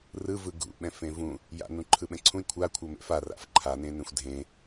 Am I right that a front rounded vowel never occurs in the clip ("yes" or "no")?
yes